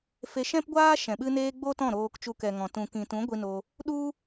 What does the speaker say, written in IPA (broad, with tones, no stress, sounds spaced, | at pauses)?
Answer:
f e˧ ʃ ɛ̃˦ p ɡʷ aː˦ ʃ ɛ̃˨ ɓ ɨ˧ n eː˧ ɡ͡b o˦ t ɔ̃˦˨ ɾ oː˧ k t͡ʃ u˧ k ɛ˨ ŋ ɔ̃˨ t ũ˨ k ĩ˨ t ũ˨˦ ɡʷ i˧ n o˧ | ɗ u˦